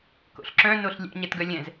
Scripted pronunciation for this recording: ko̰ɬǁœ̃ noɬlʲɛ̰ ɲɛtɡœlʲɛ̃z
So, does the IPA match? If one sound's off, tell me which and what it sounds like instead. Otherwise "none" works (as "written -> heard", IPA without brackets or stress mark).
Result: none